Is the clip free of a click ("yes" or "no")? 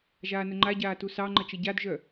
no